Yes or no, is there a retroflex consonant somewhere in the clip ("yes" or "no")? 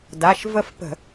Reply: no